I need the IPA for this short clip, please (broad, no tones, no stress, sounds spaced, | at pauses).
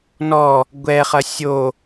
n ɔ | ɡʷ ɛ χ ɐ sʲ o